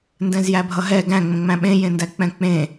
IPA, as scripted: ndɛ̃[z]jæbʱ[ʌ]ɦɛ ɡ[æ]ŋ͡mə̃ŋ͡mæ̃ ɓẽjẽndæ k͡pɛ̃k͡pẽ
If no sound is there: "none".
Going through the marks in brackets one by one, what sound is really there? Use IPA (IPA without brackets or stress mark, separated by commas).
z, ʌ, æ̃